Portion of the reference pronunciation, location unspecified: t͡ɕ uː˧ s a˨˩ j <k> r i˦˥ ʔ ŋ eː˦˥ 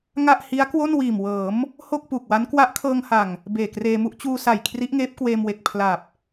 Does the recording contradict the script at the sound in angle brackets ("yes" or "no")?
yes